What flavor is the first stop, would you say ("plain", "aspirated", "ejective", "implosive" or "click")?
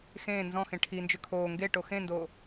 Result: aspirated